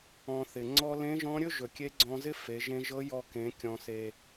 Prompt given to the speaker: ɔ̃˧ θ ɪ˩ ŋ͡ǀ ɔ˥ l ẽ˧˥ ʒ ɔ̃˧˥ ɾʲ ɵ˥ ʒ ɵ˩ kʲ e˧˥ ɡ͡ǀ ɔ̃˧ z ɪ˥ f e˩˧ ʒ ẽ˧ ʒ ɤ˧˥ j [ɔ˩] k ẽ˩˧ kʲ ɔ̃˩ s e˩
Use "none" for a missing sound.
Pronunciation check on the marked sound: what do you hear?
ɔ˧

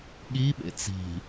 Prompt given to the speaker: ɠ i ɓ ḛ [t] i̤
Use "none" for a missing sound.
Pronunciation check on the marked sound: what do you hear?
t͡s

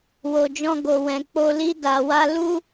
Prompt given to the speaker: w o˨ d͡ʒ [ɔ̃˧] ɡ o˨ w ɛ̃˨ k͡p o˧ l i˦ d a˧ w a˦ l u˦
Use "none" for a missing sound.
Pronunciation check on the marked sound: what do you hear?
ɔ̃˧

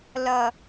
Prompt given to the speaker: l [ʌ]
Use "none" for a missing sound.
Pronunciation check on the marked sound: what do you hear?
ʌ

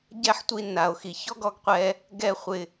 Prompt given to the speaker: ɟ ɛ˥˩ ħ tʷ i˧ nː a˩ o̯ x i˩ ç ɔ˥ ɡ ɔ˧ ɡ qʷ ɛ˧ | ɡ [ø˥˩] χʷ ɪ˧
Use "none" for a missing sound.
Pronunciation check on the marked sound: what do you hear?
ɛ˥˩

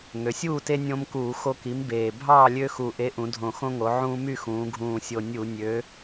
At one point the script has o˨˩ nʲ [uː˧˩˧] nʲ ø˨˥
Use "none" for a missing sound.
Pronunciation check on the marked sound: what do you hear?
u˧˩˧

